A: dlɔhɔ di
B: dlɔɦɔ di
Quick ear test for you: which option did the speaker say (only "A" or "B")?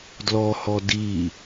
A